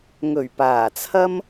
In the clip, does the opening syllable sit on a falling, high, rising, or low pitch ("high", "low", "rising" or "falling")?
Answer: low